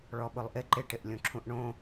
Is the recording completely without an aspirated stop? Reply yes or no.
no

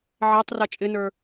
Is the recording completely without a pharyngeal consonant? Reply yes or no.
no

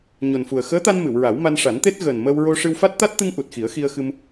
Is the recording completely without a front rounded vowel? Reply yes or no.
yes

